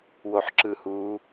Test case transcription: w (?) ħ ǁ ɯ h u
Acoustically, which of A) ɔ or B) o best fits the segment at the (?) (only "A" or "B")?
B